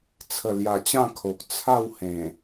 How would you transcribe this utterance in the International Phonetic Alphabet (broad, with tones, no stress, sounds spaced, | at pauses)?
t͡sʰ ə˨˩ l j a˨˩ t͡ɕ ã˥˧ kʰ o˨ k̚ t͡sʰ a˥˧ w h ẽ˨˩